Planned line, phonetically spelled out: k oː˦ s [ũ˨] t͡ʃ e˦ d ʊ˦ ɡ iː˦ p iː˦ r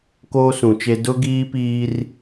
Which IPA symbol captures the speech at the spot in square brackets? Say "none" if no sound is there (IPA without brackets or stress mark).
ũ˨